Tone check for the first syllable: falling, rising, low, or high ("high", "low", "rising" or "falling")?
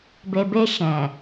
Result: low